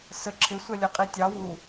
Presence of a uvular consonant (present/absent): present